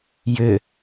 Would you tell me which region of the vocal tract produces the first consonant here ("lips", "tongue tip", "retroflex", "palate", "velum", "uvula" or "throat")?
palate